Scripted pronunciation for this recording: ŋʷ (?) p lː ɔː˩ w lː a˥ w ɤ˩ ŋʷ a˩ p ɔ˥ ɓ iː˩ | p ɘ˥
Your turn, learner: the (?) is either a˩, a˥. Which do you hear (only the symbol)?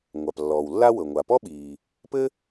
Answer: a˩